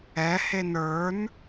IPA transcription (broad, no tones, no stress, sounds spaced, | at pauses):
ɛ h e n ə˞ n